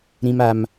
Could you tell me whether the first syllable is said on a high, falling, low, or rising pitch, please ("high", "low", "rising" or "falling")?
high